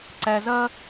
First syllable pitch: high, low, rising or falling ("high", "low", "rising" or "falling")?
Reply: low